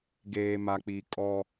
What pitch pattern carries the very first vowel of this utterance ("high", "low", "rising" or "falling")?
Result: low